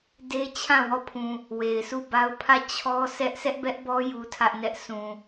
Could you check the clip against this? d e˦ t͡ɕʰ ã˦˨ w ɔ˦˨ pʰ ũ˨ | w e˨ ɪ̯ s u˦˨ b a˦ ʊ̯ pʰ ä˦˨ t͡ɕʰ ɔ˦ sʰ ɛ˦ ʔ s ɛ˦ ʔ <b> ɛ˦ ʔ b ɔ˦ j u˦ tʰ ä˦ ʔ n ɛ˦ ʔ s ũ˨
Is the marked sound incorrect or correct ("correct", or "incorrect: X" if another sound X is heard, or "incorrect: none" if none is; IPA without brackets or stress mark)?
correct